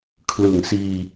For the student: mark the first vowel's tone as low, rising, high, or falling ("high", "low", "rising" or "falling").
low